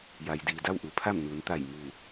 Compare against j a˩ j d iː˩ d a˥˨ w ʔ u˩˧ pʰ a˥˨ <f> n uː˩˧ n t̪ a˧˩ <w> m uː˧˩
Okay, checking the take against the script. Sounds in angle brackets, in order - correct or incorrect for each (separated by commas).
incorrect, incorrect